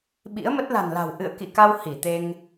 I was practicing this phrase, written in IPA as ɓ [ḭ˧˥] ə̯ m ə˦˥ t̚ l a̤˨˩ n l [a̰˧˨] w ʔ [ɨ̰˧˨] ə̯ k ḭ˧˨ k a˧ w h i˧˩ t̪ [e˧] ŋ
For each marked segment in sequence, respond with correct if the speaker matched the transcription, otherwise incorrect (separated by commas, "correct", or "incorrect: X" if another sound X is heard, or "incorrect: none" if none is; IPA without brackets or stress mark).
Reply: correct, incorrect: a̤˨˩, correct, correct